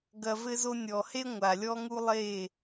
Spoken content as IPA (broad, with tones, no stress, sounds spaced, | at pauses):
ɡ ɐ˨ v ɘ˧ z o˧ nʲ ɔ˨ h e˦ ŋʷ a˨ lʲ ɔ˦ ŋ u˦ lˠ e˦˨